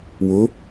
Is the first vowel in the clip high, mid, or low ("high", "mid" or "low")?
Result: high